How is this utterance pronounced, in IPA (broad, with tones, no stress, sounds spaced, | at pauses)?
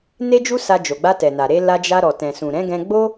n e˦ d͡ʒ u˦ s a˧ d͡ʒ o˨ ɡ͡b a˧ t ɛ˨ n a˨ ɾ e˧ l a˧ d͡ʒ a˧ ɾ ɔ˨ t ɛ̃˨ s ũ˨ ɾ ɛ̃˨˦ ɡ ɛ̃˧ ɡ͡b o˦